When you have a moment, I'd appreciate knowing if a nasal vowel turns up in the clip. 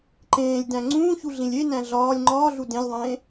yes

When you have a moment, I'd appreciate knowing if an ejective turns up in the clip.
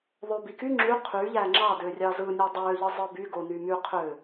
no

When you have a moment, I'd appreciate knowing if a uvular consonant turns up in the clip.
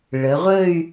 yes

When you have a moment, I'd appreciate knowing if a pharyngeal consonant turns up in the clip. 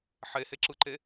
yes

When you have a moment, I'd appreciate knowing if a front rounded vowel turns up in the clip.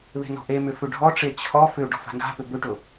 yes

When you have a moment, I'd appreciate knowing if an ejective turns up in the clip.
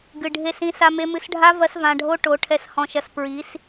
no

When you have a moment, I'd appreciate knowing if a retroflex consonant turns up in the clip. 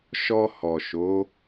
no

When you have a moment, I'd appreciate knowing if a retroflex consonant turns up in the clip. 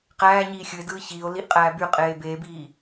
no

